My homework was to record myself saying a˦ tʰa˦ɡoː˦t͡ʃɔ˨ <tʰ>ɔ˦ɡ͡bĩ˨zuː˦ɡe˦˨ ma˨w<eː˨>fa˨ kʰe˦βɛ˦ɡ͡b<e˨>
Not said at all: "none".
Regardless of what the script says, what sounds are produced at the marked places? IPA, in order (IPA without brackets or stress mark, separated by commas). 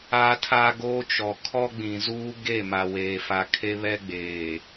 kʰ, eː˨, eː˨